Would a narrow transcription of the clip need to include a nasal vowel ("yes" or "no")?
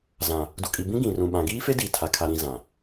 yes